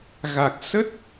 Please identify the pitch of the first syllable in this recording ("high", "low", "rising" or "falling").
low